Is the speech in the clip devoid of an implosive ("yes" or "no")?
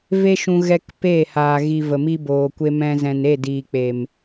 yes